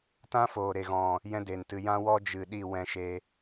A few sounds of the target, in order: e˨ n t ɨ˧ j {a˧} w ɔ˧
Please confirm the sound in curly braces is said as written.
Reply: no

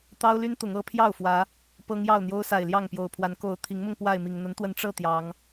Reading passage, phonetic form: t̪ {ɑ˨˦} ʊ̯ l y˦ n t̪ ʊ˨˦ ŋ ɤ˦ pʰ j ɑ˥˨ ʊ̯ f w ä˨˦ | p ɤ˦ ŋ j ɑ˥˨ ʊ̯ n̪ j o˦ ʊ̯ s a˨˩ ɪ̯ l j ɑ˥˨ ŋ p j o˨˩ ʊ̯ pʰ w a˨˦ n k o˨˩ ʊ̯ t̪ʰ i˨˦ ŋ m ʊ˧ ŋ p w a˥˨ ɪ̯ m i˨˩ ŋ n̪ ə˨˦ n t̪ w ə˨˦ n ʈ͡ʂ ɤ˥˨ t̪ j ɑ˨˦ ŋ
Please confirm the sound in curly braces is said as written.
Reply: no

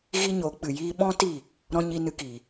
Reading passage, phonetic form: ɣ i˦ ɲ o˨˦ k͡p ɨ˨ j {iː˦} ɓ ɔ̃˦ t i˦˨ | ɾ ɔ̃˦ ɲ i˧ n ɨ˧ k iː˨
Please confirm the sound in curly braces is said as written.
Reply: yes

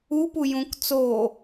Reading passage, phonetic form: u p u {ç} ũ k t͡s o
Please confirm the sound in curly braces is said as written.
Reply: no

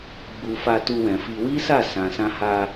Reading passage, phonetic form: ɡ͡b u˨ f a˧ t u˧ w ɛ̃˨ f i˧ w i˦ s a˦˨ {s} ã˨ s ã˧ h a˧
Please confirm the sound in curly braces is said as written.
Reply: yes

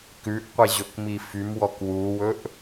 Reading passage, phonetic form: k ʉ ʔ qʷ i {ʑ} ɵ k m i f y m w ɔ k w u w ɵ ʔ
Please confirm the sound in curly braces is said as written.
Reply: yes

